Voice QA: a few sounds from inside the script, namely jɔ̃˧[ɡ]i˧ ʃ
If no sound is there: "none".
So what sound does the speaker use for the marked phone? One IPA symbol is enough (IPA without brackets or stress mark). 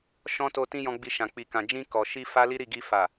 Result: ɡ͡b